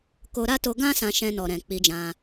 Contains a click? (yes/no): no